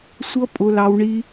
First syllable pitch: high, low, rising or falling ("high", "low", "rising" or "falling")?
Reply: high